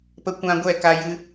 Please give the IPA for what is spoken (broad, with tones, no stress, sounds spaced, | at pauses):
p ə˦ kʷ ã˦ ɡʷ ɛ˦˨ k a˧ j ɨ˧